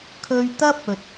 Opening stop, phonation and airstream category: aspirated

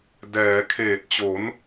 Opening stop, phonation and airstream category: plain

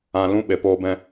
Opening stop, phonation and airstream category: implosive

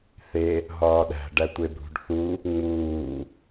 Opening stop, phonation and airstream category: implosive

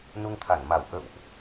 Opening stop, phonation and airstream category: aspirated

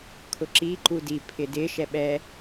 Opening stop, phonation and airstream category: aspirated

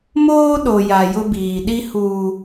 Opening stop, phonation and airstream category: implosive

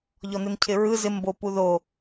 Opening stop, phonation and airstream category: aspirated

